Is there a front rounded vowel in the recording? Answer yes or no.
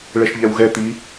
no